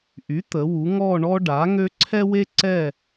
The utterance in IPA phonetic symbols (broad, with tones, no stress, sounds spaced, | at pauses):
ʔ y˩˥ t̪ ə˩˧ w u˩˧ ŋ ɔ˦˨ ɳ ɔ˦ ɖ a˩˥ ŋ ø˦ ǀʰ ɛ˦ w e˦ ǀ ɛ˦˨